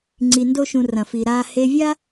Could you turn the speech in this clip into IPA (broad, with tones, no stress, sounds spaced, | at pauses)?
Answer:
ŋ͡ǀ i˧ n d o˦ ʃ ũ˧ r ɐ̃˨ f i˨ ɾ aː˧ h e˧ vʲ a˦